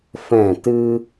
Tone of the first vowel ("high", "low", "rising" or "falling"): falling